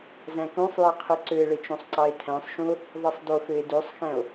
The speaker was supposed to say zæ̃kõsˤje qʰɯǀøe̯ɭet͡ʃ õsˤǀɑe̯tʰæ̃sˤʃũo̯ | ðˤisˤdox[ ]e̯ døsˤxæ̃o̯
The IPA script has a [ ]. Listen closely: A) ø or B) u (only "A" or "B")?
A